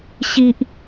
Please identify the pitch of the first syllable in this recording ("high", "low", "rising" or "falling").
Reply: high